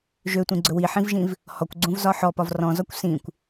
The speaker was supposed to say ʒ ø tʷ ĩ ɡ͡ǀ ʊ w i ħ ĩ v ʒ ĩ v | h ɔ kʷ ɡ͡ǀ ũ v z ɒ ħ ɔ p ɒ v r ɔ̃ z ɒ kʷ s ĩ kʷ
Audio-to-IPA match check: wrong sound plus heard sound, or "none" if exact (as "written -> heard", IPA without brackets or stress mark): ʊ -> ɵ